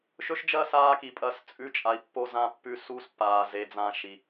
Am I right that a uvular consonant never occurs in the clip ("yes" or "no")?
yes